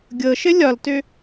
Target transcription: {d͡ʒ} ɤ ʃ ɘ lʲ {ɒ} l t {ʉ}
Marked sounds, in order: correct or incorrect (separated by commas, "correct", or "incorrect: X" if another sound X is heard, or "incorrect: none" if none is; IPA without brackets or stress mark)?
incorrect: ɡʲ, correct, incorrect: ø